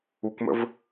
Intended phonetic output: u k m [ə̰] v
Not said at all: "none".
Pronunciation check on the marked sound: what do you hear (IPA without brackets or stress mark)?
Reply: ə̰